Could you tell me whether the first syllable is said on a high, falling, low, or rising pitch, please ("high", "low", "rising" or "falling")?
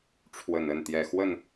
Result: low